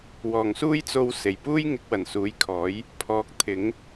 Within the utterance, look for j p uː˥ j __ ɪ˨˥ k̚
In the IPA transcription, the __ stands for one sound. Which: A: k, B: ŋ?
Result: B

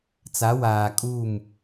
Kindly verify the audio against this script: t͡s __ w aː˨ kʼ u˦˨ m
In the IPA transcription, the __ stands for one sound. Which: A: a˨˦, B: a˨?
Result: A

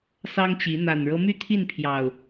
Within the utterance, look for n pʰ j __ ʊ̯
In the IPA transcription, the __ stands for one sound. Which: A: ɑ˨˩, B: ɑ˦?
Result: A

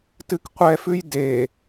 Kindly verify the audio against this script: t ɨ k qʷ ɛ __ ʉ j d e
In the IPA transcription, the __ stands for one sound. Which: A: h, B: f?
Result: B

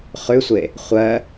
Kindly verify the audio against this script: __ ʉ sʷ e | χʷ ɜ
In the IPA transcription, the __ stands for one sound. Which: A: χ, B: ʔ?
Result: A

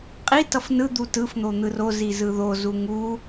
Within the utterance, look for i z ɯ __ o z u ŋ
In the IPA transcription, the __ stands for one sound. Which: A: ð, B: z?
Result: A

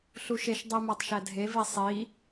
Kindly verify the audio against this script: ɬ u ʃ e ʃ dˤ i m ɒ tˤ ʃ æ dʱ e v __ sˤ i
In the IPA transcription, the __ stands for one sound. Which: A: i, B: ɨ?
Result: A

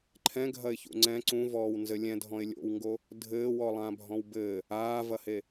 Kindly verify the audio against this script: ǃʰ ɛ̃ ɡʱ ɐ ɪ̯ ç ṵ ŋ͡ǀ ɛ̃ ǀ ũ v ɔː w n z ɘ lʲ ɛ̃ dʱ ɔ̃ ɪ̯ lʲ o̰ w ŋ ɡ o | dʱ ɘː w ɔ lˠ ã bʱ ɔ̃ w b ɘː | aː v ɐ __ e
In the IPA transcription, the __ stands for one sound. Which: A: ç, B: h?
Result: B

